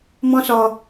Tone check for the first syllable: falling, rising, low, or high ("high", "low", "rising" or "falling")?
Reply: high